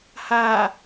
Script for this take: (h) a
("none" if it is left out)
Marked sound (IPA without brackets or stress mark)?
h